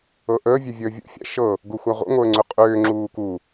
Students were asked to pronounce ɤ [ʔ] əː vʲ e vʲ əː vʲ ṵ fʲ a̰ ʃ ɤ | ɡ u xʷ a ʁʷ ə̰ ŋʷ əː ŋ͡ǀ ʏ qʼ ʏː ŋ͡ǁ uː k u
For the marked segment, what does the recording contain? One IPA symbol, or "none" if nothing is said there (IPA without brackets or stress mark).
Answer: ʔ